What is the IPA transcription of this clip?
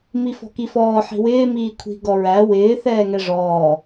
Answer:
m i f ɔ̤ k i f ɔː ħ i̤ w ɪː m iː kʷʰ i̤ ɡ ɔ ɹ æ w ɪː θ ɛː ŋ ɛ ʐ ɔː

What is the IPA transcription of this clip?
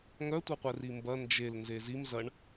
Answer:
ŋ œ tʷ ə˞ qʷ ɛ r i m b ɐ n d͡ʒ e l n z e z i m z ɐ ɳ

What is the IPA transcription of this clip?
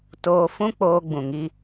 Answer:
t oː˧ f ũ˦ k͡p oː˧ ɡ͡b ũ˨ ŋ i˧

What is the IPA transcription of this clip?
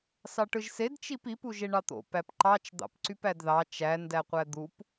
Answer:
s ɑ ʈ ɯ ʒ s e d t͡ʃ i p i p u ʒ e ɳ ɑ t̪ o̰ p æ p ǃ ɑ t͡ʃ d̪ ɑ̰ p ǀ y p æ d ð ɑ t͡ʃ æ n d æ qʷ æ d̪ u p

